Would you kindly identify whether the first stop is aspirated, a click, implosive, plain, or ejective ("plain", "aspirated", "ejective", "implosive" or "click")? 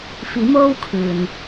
aspirated